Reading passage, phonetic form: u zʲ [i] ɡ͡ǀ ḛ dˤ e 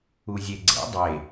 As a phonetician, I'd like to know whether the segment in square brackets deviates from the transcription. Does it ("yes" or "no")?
yes